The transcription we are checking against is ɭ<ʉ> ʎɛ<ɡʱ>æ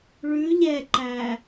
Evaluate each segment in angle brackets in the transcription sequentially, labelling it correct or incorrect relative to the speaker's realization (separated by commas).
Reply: correct, incorrect